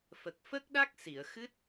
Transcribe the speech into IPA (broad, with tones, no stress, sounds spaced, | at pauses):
f ə˨˩ k̚ f ə˦˥ k̚ ɗ a˦˥ k̚ s i˨˩˨ ə̯ x ɨ˦˥ t̚